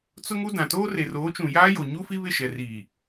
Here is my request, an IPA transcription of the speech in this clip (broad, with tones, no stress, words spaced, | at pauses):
t͡sʊ˦ŋu˦dã˨ toː˦re˨roː˨˦t͡ʃũ˨ jaː˦jo˨ɲu˦fi˦ βɪ˦˨ʃɛ˨ riː˨